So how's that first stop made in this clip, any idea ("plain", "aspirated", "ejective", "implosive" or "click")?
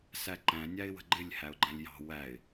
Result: click